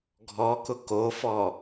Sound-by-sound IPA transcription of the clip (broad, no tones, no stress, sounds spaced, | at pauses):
ɡʱ ɔ k ʊ k o f ɔ